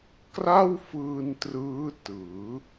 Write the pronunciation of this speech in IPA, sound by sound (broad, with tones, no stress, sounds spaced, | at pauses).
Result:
k r a˥˩ w f ɯː˧ n t r ɯː˦˥ t ɯː˩˦